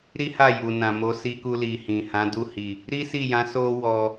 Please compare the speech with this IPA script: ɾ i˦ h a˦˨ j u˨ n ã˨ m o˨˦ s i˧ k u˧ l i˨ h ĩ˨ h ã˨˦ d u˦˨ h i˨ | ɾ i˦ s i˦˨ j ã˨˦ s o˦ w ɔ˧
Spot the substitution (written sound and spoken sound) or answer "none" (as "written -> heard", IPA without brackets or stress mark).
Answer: none